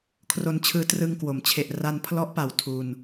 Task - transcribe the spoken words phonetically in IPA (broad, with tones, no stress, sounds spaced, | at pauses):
kʰ r o˧ n t͡ɕʰ ɯː˧ t r ɯ˧ ŋ k w o˩˦ m t͡ɕʰ e˨˩ ʔ r a˧ n pʰ l ɔ˦˥ ʔ p a˨˩ w tʰ u˧ n